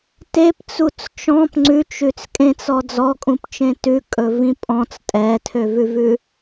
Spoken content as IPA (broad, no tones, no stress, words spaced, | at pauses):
tept͡sut͡s t͡ʃɔ̃p ŋ͡ǀʉt͡ʃʉt͡s kʼẽt͡sɔ d͡zɔkʼũpt͡ʃẽ tʉkʼɵvĩ pʼɔ̃t͡s tʼɛtʰøvʉvʉ